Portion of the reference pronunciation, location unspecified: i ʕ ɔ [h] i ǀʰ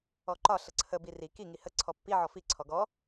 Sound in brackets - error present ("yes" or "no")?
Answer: yes